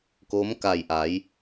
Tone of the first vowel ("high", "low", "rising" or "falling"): rising